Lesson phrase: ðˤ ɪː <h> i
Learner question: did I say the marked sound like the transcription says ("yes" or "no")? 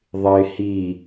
yes